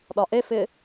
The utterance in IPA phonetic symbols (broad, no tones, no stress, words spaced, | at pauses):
ɗɒʔefɪ